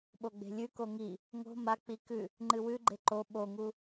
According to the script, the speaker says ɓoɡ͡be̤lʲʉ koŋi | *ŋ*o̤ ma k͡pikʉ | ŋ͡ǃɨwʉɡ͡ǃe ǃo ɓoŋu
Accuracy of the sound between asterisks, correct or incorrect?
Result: correct